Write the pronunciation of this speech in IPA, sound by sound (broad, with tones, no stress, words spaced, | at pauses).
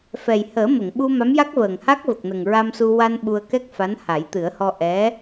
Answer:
fɛ˨˩j həː˨˩˦mə˨˩˨ŋɓu˧ ma˧˥mja˦˥k̚vəː˨˩ŋha˦˥k̚ və˨˩k̚nə˨˩ŋɹa˧msu˧ wa˧n ɓu˧ə̯kɛ˦˥k̚fa˧˥n ha˨˩˦jt̪ɨ˨˩˦ə̯hɔ˧ ʔɛ˧˥